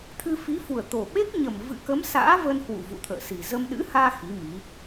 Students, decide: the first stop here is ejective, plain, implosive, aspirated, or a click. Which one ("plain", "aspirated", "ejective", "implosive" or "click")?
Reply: aspirated